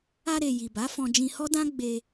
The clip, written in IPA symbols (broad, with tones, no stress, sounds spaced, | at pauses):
a˧ ɾ e˨ j i˨ b a˨˦ f ɔ̃˧ d͡ʒ ĩ˧ h ɔ˦ d ã˦ ɡ͡b e˧